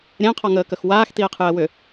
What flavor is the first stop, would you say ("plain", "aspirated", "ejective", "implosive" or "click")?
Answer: aspirated